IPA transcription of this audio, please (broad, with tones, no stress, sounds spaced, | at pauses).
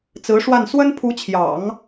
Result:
t͡s ɹ̩˧˥ ʂ w a˥˩ n s w ə˥ n pʰ u˧˥ t͡ɕʰ j ɑ̰˨˩˦ ŋ